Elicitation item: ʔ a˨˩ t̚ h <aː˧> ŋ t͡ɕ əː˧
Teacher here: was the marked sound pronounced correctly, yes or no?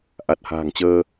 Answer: no